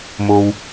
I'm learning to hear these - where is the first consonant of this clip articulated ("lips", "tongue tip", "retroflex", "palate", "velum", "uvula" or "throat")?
lips